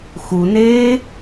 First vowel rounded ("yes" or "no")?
yes